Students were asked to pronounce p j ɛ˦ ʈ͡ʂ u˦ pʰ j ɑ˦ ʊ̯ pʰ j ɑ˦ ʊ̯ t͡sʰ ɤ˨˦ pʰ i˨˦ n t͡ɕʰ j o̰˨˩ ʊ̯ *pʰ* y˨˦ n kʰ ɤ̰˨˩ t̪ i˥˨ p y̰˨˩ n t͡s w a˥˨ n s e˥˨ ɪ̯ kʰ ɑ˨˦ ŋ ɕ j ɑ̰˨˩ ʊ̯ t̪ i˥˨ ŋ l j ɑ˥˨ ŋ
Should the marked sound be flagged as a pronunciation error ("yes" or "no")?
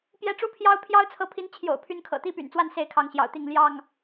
no